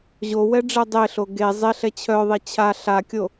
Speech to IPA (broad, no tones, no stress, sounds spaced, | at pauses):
ʑ o w ɛ ɖ͡ʐ ɛ dˤ e ɬ o ɡ e zˤ e ɬ ɛ t͡ɕʰ œ ðˤ e t͡ɕʰ a ɬ a kʲ o